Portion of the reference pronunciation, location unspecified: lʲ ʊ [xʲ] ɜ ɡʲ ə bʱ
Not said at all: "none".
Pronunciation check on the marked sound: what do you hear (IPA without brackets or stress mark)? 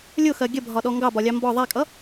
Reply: x